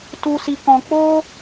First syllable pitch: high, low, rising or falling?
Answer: high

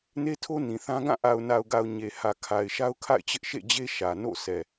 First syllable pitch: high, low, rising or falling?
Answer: high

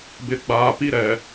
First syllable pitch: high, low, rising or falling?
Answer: low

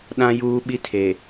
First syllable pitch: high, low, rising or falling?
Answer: high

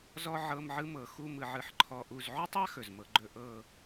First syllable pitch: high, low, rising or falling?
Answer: high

